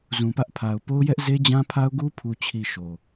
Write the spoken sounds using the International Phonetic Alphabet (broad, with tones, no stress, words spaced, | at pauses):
zũ˨pä˦ʔ pʰa˨ʊ̯po˦ʊ̯ jɛ˦ʔze˦d͡ʑã˦pʰa˦ʊ̯ ɡu˦pʰu˨t͡ɕʰi˨ ʃo˨